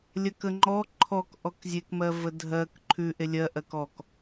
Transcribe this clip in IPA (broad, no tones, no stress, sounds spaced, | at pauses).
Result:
lʲ ɜ k ə ŋ͡ǃ ɔ ǃʰ ɔ k ʔ ɔ k zʲ e k m ɜ v ə dʱ ɜ k ǃʰ ʉ ʔ e lʲ ɜ ʔ ɜ k ɔ k